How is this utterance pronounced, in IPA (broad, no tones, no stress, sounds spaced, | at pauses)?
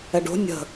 ɛ ɖ o̤ nʲ ə̤